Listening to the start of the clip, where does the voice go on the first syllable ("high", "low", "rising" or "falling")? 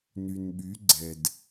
low